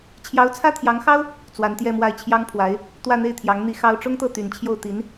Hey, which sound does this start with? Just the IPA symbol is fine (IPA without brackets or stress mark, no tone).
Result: t͡ɕʰ